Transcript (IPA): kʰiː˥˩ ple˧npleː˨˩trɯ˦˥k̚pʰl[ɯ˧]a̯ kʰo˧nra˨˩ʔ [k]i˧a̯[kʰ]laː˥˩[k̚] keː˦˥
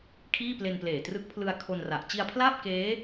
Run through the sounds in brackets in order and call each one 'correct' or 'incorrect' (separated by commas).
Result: correct, incorrect, incorrect, incorrect